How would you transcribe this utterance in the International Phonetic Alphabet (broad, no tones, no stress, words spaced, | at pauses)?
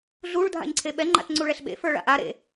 ɮuɭ dʱa̰ɲǀʰeɓɛ ŋ͡ǃa̰tŋ͡ǀuɭɛɬɓḛ fə˞ɭa̰ʔa ɾḛ